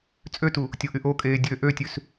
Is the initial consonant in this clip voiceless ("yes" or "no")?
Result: yes